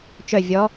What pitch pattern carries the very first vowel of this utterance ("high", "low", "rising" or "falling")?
falling